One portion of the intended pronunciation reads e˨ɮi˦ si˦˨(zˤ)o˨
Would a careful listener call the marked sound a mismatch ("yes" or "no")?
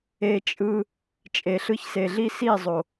no